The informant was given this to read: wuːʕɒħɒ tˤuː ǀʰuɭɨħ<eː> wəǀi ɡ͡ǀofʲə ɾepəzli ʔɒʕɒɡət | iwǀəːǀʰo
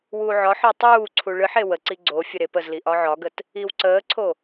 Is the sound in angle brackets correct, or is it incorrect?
incorrect